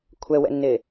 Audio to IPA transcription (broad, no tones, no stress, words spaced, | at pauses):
kʷʰɛwɛ̰nːe